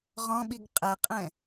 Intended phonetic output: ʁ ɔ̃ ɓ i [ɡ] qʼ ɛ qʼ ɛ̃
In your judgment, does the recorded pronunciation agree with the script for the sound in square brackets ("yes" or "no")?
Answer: yes